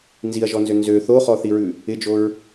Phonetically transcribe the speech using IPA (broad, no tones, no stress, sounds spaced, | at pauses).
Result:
n z i ɐ̯ ʒ ɔ n z ø n z ø θ o χ ɔ θ i ɹ ʉ | ɪ d͡ʒ o ɹ